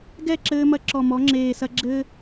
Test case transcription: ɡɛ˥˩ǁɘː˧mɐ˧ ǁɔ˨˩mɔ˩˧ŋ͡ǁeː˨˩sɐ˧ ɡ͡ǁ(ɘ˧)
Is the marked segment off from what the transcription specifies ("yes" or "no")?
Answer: no